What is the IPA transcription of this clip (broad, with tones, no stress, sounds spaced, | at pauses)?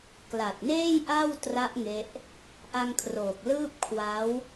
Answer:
k l a˨˩ t̚ n eː˥˩ j ʔ a˥˩ w t r a˦˥ ʔ ŋ e˦˥ ʔ | ʔ a˧ ŋ kʰ r oː˨˩ k̚ l ɯː˥˩ p̚ kʰ w a˦˥ w